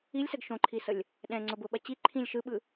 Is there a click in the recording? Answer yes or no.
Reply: yes